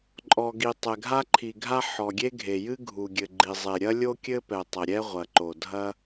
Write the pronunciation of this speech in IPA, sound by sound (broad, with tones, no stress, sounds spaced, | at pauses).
ǃʼ ɔ˩ ɡ i˩ tˤ ɛ˩ ɡʱ a˥ ǃʰ i˩ ɡʱ a˥ ħ ɔ˩ ɡʲ e˥ ɡʱ e˩ j ɨ˥ ɡʱ u˩ ɡʲ ɘ˩ ɡ͡ǃ i˩ zˤ e˩ ɾʲ ɐ˥ lʲ o˥ kʲ ɘ˥ p ɛ˩ tˤ ɐ˩ ɾʲ ɛ˥ ʁʷ ɐ˩ ǃ o˩ dʱ ɐ˥